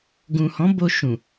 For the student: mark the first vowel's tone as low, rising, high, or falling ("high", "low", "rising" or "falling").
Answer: low